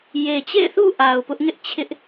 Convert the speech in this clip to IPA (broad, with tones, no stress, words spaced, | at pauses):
je˨t͡ɕḛ˦˨ɪ̯θṵ˦˨ ʔa˨ʊ̯ pʊ˦ʔŋɪ˦ʔt͡ɕʰɪ˦ʔ